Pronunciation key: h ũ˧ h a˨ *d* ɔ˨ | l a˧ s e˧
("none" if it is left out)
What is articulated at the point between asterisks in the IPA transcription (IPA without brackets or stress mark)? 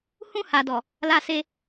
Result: d